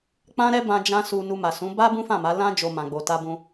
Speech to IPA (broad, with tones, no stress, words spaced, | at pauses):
k͡pã˧ ɾɛ˦bã˧ d͡ʒã˧ su˧ nu˧ma˨sũ˨˦ ba˦ bũ˦fã˦˨ma˨˦ lã˦ d͡ʒo˧ mã˨ɡ͡bo˨ ta˧bũ˧